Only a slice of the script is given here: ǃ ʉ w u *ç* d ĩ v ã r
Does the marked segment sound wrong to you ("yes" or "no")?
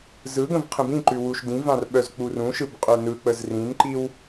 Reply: yes